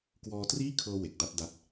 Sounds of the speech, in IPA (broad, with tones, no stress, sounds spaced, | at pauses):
k w ɔː˧ t r iː˥˩ kʰ ɤː˧ w e˨˩ k̚ d a˥˩ t̚ d a˦˥ t̚